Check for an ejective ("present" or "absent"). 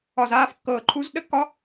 absent